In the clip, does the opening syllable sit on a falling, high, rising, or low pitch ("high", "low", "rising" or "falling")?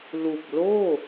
low